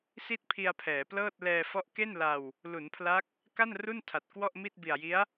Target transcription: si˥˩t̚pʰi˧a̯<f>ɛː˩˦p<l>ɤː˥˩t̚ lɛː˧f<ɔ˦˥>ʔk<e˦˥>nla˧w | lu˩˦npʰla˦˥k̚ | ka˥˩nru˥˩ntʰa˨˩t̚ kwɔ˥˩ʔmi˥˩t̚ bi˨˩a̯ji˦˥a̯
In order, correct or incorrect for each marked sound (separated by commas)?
incorrect, correct, correct, incorrect